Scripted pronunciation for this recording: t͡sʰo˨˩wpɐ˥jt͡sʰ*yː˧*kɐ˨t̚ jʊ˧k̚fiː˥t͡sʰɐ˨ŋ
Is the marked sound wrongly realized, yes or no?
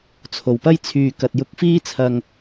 yes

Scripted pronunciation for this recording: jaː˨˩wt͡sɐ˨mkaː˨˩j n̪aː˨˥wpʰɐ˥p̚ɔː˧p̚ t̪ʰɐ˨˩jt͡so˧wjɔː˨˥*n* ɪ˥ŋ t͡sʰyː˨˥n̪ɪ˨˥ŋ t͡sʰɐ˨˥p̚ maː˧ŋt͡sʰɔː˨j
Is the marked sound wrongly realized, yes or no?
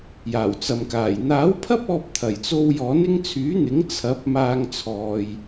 no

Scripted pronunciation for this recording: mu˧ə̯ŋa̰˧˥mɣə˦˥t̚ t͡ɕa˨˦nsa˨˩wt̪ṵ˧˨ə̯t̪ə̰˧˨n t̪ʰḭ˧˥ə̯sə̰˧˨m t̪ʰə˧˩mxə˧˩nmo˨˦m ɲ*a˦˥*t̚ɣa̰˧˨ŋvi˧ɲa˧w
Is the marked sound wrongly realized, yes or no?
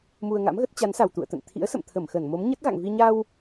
yes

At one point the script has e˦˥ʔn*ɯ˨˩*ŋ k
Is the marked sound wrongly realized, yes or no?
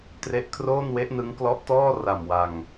yes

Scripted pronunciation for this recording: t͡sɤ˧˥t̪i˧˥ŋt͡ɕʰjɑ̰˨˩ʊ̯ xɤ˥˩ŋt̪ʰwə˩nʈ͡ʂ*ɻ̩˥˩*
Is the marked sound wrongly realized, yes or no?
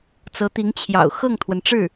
no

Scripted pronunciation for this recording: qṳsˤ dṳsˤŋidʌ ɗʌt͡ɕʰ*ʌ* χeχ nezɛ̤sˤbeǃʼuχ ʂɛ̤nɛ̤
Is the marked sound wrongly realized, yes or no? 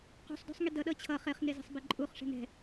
no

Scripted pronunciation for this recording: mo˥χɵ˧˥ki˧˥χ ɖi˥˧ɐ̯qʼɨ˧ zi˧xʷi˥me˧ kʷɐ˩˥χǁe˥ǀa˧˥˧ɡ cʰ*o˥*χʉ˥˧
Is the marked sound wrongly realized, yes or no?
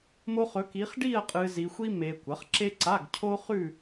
no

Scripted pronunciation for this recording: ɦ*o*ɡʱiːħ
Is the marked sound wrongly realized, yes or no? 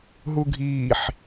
yes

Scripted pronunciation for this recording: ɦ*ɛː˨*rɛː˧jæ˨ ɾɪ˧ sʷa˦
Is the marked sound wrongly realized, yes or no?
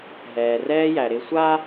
no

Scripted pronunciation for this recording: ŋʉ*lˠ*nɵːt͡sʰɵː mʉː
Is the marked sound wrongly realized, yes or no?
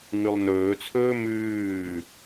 no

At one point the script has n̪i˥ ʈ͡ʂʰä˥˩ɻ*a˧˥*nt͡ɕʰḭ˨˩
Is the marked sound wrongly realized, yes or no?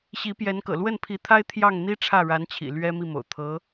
no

